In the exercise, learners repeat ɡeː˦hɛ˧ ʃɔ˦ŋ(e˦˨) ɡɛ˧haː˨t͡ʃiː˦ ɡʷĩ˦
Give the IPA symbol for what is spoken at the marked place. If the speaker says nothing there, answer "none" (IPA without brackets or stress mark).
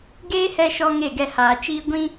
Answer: e˦˨